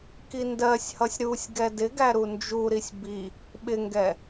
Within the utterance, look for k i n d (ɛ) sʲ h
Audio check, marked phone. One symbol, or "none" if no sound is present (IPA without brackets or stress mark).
ɜ